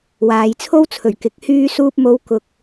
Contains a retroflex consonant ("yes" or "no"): no